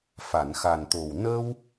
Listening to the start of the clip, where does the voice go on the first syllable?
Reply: low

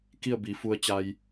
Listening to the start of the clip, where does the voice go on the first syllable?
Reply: falling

